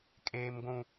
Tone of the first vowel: high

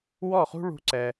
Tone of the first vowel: falling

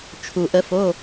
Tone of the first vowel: low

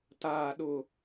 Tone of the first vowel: low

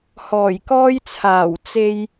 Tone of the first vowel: low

